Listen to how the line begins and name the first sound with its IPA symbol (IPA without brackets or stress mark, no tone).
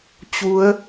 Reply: t͡ɕ